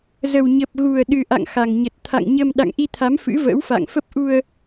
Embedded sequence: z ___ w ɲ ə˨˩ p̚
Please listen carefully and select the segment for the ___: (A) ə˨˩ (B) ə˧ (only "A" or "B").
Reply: A